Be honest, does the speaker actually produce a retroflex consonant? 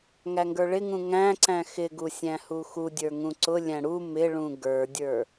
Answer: yes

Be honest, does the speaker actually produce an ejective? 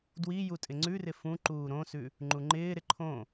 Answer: yes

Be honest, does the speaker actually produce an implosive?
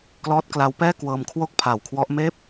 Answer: no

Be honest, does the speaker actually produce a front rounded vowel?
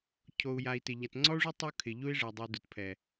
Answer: no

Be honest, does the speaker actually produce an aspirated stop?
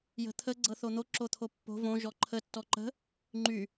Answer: yes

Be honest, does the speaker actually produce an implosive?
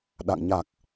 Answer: yes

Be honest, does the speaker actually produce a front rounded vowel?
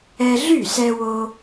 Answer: yes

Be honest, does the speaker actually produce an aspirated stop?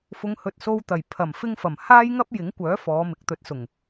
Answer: yes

